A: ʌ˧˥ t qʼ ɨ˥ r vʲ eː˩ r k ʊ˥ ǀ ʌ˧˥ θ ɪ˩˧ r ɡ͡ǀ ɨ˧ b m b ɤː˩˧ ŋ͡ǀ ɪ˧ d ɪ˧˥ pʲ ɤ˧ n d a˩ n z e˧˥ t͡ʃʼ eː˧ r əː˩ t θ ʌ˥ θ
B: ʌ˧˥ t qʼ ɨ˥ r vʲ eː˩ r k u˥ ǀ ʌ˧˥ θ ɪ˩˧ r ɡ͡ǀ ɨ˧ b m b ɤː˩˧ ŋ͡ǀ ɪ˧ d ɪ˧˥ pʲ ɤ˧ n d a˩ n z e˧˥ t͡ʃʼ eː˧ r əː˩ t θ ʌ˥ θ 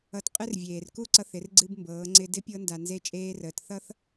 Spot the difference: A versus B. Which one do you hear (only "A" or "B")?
B